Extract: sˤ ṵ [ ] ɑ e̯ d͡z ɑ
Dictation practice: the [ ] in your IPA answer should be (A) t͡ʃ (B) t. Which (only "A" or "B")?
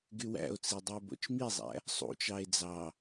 A